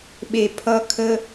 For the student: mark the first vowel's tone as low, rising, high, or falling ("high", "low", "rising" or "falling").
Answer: low